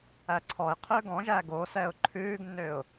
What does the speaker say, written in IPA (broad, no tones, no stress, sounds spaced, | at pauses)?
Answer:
æ ǀʰ ɔ ɪ̯ qʰ ø ɡ ɔ̃ ʒ æ ɡ o s ɛ ʊ̯ ǃʰ ʉː ɡ nː ø ʊ̯